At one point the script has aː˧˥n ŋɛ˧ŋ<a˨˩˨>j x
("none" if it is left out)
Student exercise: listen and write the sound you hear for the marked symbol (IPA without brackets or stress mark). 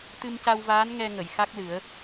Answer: ə˨˩˨